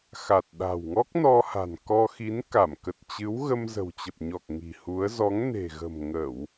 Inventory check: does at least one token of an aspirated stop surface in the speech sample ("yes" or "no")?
no